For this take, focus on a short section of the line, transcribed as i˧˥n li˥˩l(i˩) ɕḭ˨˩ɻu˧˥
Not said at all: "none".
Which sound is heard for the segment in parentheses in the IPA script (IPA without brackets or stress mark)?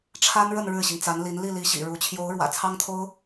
i˧˥